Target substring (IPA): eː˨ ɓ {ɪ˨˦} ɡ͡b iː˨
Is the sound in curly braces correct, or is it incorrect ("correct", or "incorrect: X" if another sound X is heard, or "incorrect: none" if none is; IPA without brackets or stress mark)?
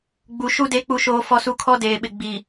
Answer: incorrect: ɪ˨